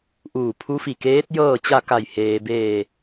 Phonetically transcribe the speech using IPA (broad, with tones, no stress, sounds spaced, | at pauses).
ʔ uː˧˩ pʰ u˧˥ f i˧˩ k eː˧˥ t̚ j ɤː˥˨ t͡ɕ a˥˨ k a˧˩ j h eː˩ b eː˧˩